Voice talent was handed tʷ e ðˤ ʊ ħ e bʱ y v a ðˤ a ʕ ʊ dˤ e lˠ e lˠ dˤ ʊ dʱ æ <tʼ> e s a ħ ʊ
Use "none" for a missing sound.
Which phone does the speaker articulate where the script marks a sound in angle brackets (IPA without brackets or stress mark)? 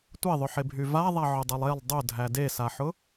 d